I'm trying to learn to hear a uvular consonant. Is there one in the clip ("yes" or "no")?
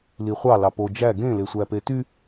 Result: yes